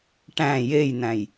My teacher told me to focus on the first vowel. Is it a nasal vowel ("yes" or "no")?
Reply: yes